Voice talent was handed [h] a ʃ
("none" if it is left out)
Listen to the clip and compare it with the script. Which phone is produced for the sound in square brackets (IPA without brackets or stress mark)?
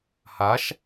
h